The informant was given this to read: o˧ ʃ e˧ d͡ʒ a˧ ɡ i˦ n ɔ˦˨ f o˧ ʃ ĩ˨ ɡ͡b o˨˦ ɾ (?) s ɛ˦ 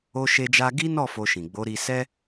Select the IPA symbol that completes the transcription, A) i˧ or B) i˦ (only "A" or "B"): A